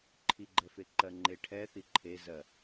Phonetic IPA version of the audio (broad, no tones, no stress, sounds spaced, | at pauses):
ǃʰ i ɡ͡ǃ ɛ f e ǃ ɜ ŋ͡ǃ e ʈʰ ɛ θ i ǃʰ e z ɜ